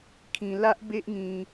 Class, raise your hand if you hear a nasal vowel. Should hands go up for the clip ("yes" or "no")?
yes